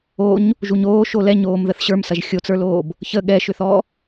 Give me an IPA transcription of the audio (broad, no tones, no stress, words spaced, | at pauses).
oɲ | ʒuɲoːʃo lɛɲ oːmðəθɕə˞msɐʒ xʲot͡sə˞loːb | çə ɠɛʃʏθɔ